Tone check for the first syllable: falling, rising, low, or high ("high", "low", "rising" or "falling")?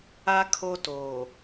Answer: high